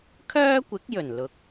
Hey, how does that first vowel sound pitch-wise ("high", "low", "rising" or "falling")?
high